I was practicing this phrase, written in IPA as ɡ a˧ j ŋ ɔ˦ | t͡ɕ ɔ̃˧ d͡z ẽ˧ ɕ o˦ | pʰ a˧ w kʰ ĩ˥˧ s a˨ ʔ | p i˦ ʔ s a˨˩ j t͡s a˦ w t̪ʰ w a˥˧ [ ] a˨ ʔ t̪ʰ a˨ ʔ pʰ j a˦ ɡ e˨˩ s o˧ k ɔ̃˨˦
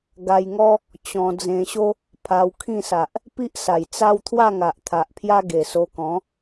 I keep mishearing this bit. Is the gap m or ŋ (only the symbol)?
ŋ